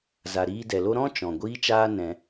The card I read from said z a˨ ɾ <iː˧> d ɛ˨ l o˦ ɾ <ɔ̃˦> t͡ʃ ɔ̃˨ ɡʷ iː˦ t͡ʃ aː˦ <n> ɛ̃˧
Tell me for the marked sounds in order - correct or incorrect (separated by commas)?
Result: correct, correct, correct